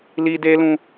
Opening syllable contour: high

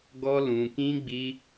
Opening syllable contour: high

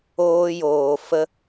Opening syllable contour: high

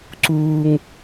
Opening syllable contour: high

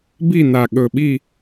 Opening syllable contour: falling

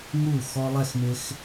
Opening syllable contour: falling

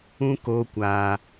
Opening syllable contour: high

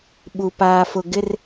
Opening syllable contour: high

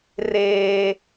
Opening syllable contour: high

